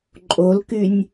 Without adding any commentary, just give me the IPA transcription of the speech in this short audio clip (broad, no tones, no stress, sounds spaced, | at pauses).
ǃʼ o l k y nʲ